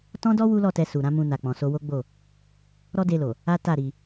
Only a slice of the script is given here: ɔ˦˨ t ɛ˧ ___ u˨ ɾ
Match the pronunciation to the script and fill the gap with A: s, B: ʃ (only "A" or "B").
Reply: A